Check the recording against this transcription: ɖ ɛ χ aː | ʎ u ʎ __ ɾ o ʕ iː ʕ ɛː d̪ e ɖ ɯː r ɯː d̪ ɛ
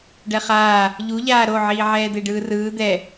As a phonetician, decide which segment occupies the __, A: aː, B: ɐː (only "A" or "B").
A